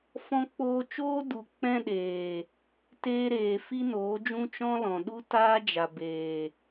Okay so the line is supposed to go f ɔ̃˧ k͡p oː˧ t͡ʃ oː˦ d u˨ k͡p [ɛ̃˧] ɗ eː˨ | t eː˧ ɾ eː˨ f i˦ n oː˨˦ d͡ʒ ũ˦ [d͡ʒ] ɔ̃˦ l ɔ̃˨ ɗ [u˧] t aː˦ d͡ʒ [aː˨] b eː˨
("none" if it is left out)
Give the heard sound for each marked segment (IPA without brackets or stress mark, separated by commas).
ɛ̃˧, t͡ʃ, u˦, a˨